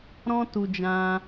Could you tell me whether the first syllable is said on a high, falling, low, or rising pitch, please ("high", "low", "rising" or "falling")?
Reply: high